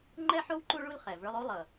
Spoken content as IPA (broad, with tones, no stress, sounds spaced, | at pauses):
ŋ͡ǃ ɛ˥ ħ o˥ w ǃ u˦ ɭ u˦ l χ ɛ˩ v ə˞˦ lˠ o˥ lˠ ʌ˩